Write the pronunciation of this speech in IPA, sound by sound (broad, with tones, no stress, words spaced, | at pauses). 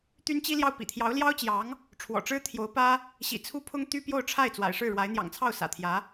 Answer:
t̪y˥nt͡ɕi˥ljɑ˥˩ʊ̯ pḭ˨˩t̪ʰjɑ˧˥ʊ̯ljɑ˥ʊ̯t͡ɕjɑ˧˥ŋ | ʈ͡ʂʰwɔ̰˨˩ʈ͡ʂɻ̩˥ t̪ʰjo˧˥ʊ̯pä˥ | ɕḭ˨˩ t͡sʰu˥pʰʊ˥ŋ t̪y˥pjo˥˧ʊ̯ʈ͡ʂʰa˥˩ɪ̯ t͡swa̰˨˩ɪ̯ʂɻ̩˥˩ɻwa˧˥ɪ̯ n̪jɑ̰˨˩ŋt͡sʰɑ˥˩ʊ̯ sä̰˨˩t̪ʰjä˧˥